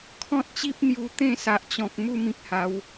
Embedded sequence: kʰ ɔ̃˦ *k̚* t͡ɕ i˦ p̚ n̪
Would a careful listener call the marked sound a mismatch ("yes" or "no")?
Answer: yes